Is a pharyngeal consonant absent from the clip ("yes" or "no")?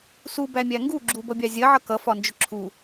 no